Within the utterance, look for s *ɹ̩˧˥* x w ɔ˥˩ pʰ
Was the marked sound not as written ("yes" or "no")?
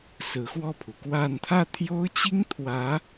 no